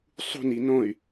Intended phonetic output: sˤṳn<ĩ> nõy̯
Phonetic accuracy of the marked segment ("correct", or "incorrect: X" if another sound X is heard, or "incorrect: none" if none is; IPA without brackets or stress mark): incorrect: i